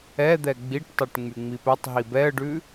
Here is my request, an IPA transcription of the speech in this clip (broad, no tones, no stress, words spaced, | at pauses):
ɛd̪ɛ ɡ͡biʈtˤɛʈ ŋ͡myŋ͡mipɛtˤɦi bɛə̯ɖʉ